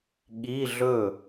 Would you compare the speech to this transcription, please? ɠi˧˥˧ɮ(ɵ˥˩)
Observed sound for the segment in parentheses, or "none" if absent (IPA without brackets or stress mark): ɵ˥˩